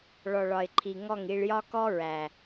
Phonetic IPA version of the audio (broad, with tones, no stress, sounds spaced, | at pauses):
ɭ ɔ˨ ɭ ɒ˨ ɪ̯ ǃʰ i˨ ŋ ɔ˦˨ ŋ i˧ ɭ j ɒ˦ k ɔ˦ ɹ æ˨